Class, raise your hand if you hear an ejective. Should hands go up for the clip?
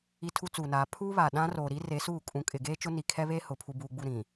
yes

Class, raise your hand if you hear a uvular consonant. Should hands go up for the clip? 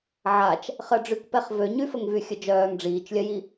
yes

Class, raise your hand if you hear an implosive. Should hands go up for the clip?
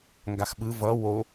yes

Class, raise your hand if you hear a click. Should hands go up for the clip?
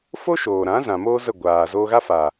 no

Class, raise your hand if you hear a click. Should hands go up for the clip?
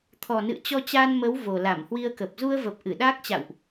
no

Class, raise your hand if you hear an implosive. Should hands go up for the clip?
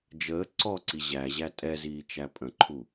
no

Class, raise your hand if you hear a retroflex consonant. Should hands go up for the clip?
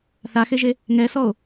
no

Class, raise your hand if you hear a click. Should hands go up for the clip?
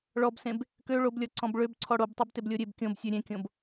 yes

